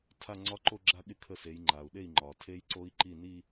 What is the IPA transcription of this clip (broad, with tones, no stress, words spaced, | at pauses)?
tʰa˥˧ŋ͡ǀɒ˦˥ǃo˥˧ ɡ͡ǁa˦˥ɠɪ˥˩ kʰə˥˧se˨˥j ŋ͡ǃa˩u̯ɗe˥˩i̯ ŋ͡ǃɒ˩tʰe˦˥j ǀo˦˥i̯ǃi˥˩ ni˥˧